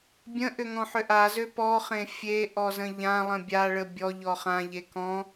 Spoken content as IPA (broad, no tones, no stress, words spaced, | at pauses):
bʲə̃ ʔʏŋɔ̃ħʏʔa zøpɔ χẽfʲe ʔɔzə̃ʎã lˠə̃bʲaɭə bʲɔʎɔ χãʎe kɔ̃